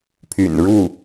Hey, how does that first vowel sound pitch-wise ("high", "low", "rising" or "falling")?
low